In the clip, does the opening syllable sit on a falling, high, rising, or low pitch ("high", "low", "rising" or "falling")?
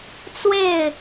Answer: falling